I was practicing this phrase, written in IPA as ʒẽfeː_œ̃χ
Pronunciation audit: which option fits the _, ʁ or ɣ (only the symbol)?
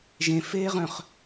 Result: ʁ